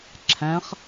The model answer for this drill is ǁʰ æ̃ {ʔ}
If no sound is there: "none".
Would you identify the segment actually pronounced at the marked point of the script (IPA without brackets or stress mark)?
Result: χ